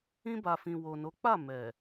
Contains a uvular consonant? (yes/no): no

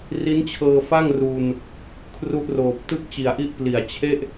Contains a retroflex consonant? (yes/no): no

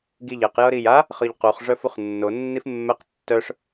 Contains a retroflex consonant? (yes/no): yes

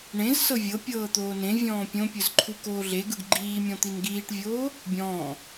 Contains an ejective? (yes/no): no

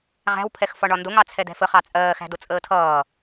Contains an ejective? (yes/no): yes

